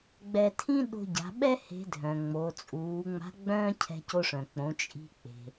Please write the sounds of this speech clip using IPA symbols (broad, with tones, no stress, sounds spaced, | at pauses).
ɡ͡b ɛ˧ tʰ ĩ˥ ɗ o̤˧ ɟ a̤˩˧ ɓ ɛ˥ h e̤˧˥ dʱ œ̃˩ ŋ͡m o˩˧ t͡sʼ uː˩˧ ŋ͡m a̤˧˥ ɡ͡b œ̃ː˥ cʰ ɛ̤˧ c o˧ ʂ œ̃˩ k͡p õ˩˧ t͡ʃʼ i̤˧ k͡p e̤˩